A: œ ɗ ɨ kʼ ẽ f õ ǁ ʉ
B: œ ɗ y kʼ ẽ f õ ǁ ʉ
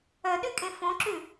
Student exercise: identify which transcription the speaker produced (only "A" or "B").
B